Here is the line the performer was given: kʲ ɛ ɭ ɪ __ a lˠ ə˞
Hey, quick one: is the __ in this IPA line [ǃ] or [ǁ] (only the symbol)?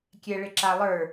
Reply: ǁ